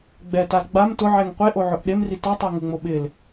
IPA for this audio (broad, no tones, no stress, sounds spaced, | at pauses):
ɡ͡b ɛ t a l ɡ͡b a m t ʊ ʕ ɛ ŋ qʷ e ʔ o ʕ ʊ ʔ ɗ e m r i t ɔ tˤ ɪ ɐ̯ ŋ u ŋ͡m o ɓ ɪ l